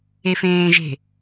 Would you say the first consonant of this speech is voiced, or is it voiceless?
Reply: voiceless